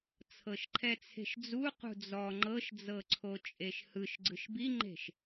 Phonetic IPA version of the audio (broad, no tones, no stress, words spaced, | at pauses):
t͡sʰɤʃǃʰɛt͡sʰe̤ʃd͡zu qṳd͡zɔ ŋ͡ǃɤʃd͡zɤǀʰo t͡ʃʼeʃhɯʃ ɡ͡ǀɯʃbiŋ͡ǃe̤ʃ